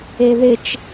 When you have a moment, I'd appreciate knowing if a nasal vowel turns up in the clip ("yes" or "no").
no